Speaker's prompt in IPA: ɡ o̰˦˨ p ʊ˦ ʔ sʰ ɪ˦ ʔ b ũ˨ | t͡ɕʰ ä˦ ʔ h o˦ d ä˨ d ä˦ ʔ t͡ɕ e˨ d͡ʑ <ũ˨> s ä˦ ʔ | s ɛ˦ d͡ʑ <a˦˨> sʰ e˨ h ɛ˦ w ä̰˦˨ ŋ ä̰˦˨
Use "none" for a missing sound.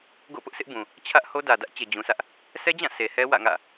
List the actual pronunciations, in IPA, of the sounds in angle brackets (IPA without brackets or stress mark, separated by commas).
ũ˨, ã˦˨